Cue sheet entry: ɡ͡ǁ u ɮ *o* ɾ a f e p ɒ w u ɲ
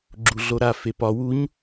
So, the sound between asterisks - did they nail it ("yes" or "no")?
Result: yes